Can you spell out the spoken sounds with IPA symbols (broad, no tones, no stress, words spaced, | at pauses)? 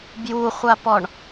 bjuχʷapɔɳ